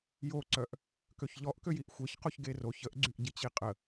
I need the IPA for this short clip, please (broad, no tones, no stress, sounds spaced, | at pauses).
j o ǀ œ ʔ | k ø ç ʎ ɔ ʔ k ø j i ʔ xʷ e ç q o ç ɡ e r o ç ə ʔ ɡ͡ǀ y ʔ ɟ i t͡ɕ i qʼ ə